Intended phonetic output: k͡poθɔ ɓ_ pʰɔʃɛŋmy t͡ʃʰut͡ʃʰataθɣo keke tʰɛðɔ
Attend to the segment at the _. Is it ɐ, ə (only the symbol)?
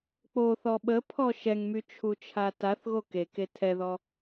ə